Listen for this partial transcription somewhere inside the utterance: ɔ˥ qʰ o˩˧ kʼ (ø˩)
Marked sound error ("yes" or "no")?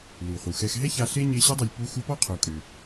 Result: no